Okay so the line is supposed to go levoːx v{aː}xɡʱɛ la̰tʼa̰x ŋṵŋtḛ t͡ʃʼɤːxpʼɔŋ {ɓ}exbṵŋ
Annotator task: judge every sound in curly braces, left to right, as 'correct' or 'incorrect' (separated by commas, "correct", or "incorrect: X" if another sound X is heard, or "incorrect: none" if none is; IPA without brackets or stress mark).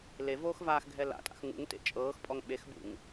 correct, correct